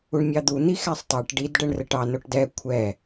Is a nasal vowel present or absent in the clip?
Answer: absent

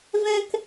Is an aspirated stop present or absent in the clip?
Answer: absent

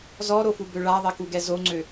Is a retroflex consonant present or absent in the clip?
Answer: present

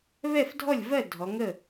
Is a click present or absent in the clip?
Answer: absent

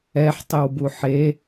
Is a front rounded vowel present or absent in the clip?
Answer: absent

